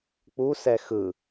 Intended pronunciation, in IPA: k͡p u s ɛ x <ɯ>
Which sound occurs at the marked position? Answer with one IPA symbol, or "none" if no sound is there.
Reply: ɯ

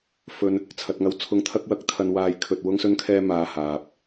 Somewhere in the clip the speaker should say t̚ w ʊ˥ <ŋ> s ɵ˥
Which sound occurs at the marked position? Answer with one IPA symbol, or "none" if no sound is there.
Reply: ŋ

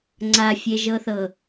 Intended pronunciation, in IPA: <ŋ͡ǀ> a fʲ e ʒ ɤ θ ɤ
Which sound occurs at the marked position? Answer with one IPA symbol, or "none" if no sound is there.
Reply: ŋ͡ǀ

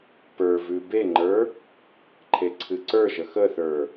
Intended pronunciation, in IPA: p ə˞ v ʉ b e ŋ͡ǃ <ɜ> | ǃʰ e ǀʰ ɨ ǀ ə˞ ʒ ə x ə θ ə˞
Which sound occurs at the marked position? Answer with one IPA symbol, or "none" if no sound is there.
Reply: ə˞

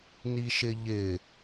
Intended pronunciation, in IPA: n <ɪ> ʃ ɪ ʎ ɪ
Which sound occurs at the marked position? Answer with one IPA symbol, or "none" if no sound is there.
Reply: i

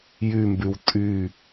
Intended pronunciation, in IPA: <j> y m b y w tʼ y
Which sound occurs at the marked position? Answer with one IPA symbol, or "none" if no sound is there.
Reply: j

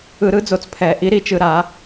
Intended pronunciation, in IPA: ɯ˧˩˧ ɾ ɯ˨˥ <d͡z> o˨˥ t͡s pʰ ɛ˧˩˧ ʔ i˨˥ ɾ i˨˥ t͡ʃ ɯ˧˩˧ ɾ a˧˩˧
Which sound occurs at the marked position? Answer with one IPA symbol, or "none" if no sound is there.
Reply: d͡z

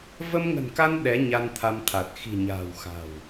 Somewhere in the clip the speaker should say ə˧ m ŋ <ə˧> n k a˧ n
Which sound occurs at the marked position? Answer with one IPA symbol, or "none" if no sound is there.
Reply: ə̤˨˩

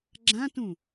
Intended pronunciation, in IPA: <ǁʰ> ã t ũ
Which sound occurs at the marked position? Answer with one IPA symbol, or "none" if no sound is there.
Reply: ɡ͡ǁ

